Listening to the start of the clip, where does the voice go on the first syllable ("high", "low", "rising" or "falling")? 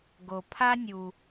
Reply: low